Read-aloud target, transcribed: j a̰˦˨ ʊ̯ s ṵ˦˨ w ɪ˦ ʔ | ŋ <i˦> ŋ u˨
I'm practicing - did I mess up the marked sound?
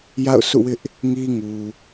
no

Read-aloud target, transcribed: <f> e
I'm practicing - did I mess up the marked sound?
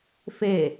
no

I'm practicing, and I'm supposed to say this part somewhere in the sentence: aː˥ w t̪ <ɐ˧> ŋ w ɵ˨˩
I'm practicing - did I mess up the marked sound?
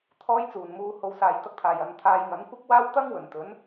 yes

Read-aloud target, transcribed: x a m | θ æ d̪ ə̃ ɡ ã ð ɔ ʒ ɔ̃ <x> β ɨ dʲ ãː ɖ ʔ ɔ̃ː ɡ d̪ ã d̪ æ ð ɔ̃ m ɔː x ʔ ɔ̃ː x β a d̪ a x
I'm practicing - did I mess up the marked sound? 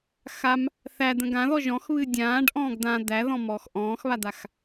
no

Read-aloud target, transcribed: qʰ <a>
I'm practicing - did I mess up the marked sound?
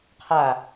no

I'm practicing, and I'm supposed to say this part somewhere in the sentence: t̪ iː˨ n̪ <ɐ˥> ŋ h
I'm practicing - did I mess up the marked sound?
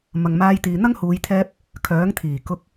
no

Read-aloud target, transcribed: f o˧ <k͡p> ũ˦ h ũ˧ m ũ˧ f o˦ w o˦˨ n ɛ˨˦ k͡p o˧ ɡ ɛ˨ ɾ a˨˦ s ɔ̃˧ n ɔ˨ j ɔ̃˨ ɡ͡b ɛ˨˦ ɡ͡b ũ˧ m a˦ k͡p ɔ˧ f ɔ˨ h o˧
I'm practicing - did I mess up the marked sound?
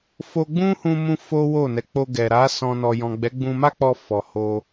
yes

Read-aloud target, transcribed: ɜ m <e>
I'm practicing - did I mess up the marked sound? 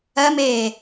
yes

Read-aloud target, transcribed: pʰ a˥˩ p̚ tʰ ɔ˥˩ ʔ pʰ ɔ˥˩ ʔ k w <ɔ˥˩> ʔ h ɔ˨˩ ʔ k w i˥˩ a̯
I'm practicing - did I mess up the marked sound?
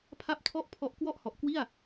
no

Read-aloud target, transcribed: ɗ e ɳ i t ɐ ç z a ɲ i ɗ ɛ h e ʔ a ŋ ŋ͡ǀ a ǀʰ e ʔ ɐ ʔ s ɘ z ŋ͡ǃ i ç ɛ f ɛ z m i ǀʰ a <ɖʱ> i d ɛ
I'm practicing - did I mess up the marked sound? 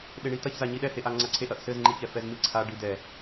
yes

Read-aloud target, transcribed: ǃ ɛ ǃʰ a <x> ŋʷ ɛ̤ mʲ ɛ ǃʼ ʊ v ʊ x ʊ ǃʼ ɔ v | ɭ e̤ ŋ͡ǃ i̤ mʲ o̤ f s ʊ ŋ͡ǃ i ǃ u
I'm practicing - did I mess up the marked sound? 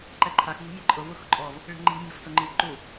no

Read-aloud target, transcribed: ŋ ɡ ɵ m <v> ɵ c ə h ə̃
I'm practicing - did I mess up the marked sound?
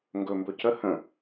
yes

